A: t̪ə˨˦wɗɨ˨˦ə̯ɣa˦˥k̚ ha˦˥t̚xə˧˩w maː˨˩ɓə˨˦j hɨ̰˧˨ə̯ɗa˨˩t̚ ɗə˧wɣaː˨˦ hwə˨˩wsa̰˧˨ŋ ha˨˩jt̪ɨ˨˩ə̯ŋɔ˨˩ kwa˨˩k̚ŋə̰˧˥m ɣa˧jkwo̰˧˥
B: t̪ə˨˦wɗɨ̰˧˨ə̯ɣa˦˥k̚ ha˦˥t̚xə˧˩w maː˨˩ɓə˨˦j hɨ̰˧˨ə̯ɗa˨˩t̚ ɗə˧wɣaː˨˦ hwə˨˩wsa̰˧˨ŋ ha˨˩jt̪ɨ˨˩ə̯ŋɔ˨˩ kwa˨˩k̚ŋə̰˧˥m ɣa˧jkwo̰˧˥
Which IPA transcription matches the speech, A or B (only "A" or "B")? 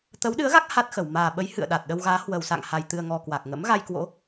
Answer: A